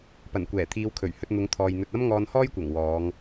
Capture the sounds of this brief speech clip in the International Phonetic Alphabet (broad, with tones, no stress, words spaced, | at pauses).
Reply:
pɐ˨˩nkʷɛː˨˩t̪ʰiː˨˧wkʰɵ˨˩ɥ hɵ˧t̚n̪ʊ˨˧ŋ t̪ʰɔː˨jn̪ɵ˧t̚ ɐ˥mŋɔː˧nhɔː˥jkʷɐ˨˩ŋ wɔː˨˧ŋ